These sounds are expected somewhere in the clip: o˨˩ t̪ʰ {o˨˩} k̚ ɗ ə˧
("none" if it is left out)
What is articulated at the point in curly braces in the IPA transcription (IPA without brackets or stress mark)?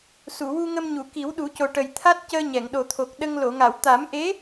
o˨˩